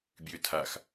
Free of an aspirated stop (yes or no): no